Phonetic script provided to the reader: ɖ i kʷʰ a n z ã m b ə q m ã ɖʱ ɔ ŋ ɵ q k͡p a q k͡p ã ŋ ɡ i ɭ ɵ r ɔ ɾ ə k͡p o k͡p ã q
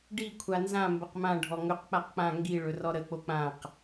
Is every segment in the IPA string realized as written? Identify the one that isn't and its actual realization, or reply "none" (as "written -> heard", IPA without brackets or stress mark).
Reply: none